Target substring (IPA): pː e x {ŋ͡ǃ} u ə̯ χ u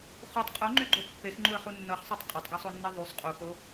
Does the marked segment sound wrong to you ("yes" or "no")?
no